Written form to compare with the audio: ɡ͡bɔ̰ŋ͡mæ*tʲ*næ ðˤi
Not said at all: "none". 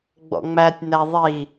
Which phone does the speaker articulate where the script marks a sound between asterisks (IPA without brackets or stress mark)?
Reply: tʲ